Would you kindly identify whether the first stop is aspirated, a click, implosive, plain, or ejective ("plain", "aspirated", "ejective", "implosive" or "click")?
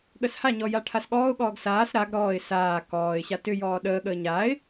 implosive